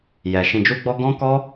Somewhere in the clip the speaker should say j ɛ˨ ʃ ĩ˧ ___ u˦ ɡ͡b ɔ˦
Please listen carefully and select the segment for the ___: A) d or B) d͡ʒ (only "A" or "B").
B